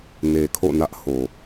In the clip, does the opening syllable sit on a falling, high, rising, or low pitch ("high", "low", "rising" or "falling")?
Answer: low